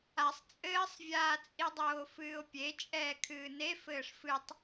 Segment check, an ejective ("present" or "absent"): present